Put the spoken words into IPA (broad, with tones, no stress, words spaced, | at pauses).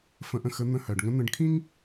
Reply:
fə̃˧˥ʔə̃˧xə˧˥ n̪ə̃˧˥hɜ˩ɖŋə̃˧˥ n̪ə̃˧ɖkʰĩ˥ŋ